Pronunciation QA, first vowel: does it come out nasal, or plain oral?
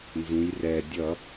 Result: nasal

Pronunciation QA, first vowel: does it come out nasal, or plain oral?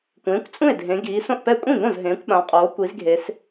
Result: nasal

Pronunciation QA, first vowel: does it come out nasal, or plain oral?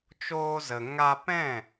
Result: oral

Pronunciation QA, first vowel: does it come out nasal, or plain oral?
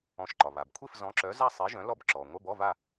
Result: nasal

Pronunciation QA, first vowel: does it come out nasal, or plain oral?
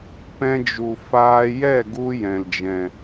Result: nasal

